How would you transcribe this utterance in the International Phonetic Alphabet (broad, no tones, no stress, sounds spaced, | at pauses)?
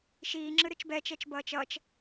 ʃ iː ŋ͡ǁ ɯ ɾ ɯ t͡ʃ b ɛ t͡ʃ ɛ t͡ʃ b ʌː t͡ʃ ʌ t͡ʃ